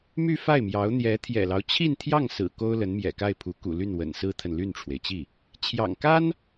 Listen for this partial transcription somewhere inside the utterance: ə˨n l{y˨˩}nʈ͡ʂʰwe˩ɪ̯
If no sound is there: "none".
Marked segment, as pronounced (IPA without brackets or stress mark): y˥˩